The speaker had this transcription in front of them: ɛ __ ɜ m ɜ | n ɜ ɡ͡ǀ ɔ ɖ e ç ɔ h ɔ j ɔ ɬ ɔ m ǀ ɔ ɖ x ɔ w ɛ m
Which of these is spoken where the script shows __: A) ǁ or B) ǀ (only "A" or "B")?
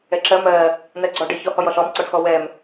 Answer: A